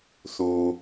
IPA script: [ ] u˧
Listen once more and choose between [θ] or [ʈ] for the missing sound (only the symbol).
θ